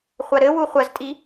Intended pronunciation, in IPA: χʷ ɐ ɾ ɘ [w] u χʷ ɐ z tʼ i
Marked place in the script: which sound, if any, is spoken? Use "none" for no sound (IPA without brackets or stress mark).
w